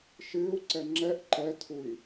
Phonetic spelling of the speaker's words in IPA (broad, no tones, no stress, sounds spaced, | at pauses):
ʃ ɨː u̯ ǀ ɛ ŋ͡ǁ ɛ ʔ ǃ ɛ tʰ u i̯